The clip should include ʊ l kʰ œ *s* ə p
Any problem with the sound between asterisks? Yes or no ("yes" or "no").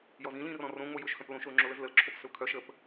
yes